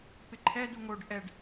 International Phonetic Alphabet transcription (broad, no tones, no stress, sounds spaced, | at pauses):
p ɪ ǃʰ ɛ d u ŋ o ɖ ʔ ɛ ɖ